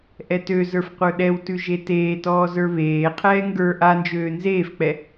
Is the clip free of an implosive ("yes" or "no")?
no